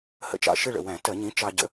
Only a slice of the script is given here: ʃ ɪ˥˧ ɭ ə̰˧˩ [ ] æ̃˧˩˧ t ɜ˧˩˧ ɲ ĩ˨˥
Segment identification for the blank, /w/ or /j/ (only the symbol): w